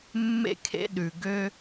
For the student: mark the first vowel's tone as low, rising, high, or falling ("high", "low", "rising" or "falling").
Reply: high